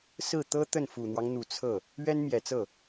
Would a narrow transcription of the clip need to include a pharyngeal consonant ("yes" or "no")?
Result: no